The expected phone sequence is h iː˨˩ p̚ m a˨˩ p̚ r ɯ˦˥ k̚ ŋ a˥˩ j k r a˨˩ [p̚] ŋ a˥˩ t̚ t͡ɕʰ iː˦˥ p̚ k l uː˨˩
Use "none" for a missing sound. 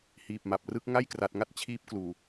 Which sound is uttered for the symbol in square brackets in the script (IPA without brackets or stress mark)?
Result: t̚